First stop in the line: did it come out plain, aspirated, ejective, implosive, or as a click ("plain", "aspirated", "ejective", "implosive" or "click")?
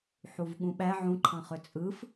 implosive